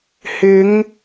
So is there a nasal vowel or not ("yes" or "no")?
no